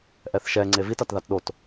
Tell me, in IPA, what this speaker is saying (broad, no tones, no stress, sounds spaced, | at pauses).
ʔ ɛ θ ʃ ɛ ŋ͡ǀ e v i t a t ð a t ɗ o t